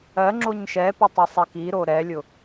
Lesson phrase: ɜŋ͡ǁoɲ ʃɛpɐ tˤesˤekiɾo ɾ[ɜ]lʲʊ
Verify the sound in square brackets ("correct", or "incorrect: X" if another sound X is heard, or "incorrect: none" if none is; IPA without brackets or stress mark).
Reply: incorrect: ɛ